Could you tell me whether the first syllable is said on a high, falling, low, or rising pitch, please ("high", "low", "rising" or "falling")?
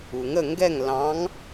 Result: low